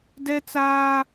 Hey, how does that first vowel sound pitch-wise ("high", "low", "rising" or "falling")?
high